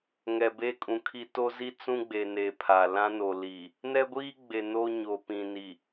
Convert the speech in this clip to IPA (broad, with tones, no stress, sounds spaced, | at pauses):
ŋ ɛ˨ b e˦ kʼ ũ˨ kʰ i˦ t o˦ z i˦ t͡s ũ˦ ɡ͡b e˨ n e˨ pʰ a˨ l ã˦ n o˨ l i˨ | n ɛ˦ ɡʷ iː˦ ɡ͡b e˨ n o˦ ɲ o˨ p ĩ˨ n i˨